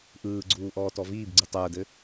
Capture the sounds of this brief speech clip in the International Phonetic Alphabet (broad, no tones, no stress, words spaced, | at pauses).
ʔɯːɡ͡ǀuː ʔɔːtɔviːbɡ͡ǀɯ tˤəːdɘ